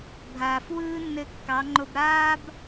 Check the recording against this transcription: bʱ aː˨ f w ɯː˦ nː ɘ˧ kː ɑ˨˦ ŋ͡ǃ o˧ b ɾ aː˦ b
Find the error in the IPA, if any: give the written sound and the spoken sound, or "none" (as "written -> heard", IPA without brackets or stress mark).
none